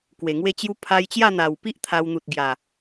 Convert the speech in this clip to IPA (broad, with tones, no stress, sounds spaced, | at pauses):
k w e˨˩ ŋ w e˦ t͡ɕ j u˦ pʰ a˧ j t͡ɕ j a˥˧ n̪ a˨˩ w p i˦ ʔ t̪ʰ a˧ w n̪ u˨ t̚ ɡ j a˨˩